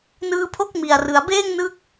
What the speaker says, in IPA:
n ɯː˦˥ pʰ o˥˩ k̚ m i˨˩ a̯ r ɯ˩˦ a̯ b eː˥˩ ŋ n ɯ˦˥ k̚

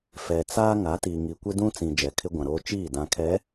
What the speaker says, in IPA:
f ɛ˨ t͡s a˦ ŋ a˨˦ t iː˨ ŋ i˨ kʷ ɪ˦ d ũ˦ t͡s ĩ˨ d͡ʒ ɛ˨ kʰ ɪ˦ ɡʷ ã˨ ɾ oː˦ t͡ʃ iː˦˨ d ã˨ kʰ ɛ˨˦

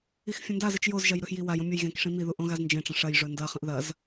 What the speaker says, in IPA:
i x fʲ ɐ̃ n d a z ɨ t͡ʃ j o z ʒ ɐ j ɾ ɵ x j i w a j õ mʲ ɵ j ɣ ẽ k ʂ ĩ m i ð u ʔ õ ɣ a z n d͡ʒ ẽ ʈ͡ʂ ɐ̃ ʂ ɐ j ʐ ɵ n d ɐ χ ɐ̃ ʔ ð ɐ z

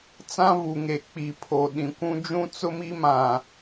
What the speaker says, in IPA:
t͡s ã˦ v u˨ ŋ e˨ k͡p i˨ pʰ o˨ ɗ ĩ˨ kʷ ũ˦ d͡ʒ ũ˦ t͡s ʊ˦ m i˦ m ã˨

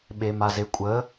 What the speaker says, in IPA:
ɓ e m a z e kʷʼ ə

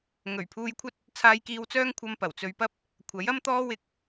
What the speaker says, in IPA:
ŋ ɵ˨˩ ɥ pʰ uː˧ j kʷʰ ɐ˥ t̚ | t͡sʰ aː˧ j k iː˧ w t͡s œː˥ ŋ kʷʰ ɐ˧ m p ɐ˨˩ w t͡s ɵ˧ ɥ p ɐ˥ p̚ | kʷʰ ɐ˨˥ j ɐ˥ m t̪ ɔː˥ w ɪ˧ k̚

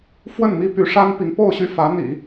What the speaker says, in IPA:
f w ə˥˩ n m i˥ p y˧˥ ʂ a˥ n p i˧˥ ŋ p o˥˧ ʊ̯ ɕ y˥˩ f ä˧˥ n̪ ḭ˨˩˦

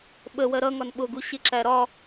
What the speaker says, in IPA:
ɓ ə w ɜ ɾ ʌ ŋ ɒ n ɓ ʊ ɡ u ɕ ɪ ǁ æ ɾ ɒ

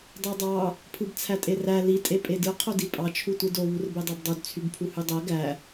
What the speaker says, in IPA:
dˤ e dˤ ɑ | pʰ ɯ b t͡sʰ æ tʼ e r æ l i tʼ e pʼ e d ɯ qʰ o d i pʼ ɑ t͡ʃʰ u tʷ ɯ d o β u r b e dˤ æ b dˤ o d t͡sʰ y b pʰ u h y dˤ æ ɡ æ

